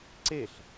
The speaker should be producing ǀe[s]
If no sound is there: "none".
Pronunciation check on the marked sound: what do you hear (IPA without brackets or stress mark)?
ɬ